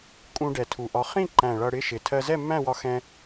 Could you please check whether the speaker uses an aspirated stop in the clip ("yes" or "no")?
yes